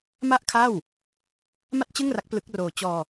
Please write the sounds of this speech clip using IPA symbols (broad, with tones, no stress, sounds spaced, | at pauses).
m a˥˩ ʔ kʰ a˥˩ w | m a˥˩ t̚ t͡ɕ ɯ˥˩ ŋ r a˦˥ k̚ p l ɯ˦˥ k̚ r oː˧ t͡ɕ ɔː˧